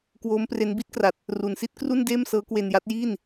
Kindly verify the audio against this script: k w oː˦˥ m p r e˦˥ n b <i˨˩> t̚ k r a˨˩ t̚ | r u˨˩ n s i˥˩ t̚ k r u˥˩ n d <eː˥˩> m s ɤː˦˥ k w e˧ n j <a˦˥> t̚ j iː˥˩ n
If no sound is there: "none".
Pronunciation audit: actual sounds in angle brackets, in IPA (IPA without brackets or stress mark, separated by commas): i˦˥, eː˥˩, a˦˥